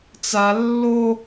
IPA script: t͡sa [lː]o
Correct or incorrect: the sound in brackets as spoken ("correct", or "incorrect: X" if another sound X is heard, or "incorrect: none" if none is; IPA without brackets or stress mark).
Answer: correct